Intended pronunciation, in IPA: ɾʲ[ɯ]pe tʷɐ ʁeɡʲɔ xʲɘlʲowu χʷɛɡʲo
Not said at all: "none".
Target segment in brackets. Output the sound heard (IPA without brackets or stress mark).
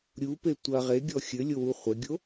u